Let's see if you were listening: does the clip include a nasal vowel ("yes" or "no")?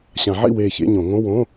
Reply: yes